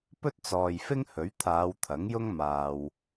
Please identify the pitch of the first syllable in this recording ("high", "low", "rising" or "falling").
high